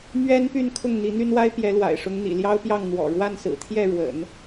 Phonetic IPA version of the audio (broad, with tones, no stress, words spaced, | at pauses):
mɥɛ˥npy˥˧n kʰʊ˥˩ŋn̪i˧˥n̪y˥nwa˥ɪ̯ pjɛ˧˥lwa̰˨˩ɪ̯ʂʊ˧˥ŋ n̪ḭ˨˩ljɑ˥ʊ̯pjɑ˥˩ŋ n̪wɔ̰˨˩ ɻwa˥˩nsɹ̩˨˩ t̪ʰjɛ˥˩ɻwə̰˨˩˦n